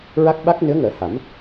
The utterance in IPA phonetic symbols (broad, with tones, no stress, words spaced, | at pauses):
ɹa˦˥k̚ɓa˦˥k̚ nɨ˧˥ə̯ŋəː˨˩˦ha˨˩˦m